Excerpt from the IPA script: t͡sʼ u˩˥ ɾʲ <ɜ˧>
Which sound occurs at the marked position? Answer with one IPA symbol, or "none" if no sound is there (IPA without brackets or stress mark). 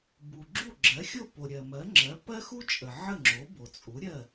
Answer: ɜ˥˩